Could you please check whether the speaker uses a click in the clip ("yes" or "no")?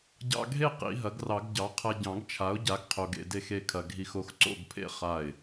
yes